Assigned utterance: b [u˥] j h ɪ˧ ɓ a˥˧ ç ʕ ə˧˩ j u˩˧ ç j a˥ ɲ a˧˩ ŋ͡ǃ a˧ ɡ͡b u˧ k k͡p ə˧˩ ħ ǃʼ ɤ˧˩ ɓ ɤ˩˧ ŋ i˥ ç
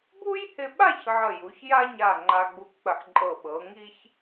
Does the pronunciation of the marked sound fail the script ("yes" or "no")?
no